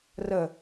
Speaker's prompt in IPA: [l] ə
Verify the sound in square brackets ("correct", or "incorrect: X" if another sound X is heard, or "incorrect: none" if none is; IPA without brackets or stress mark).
incorrect: r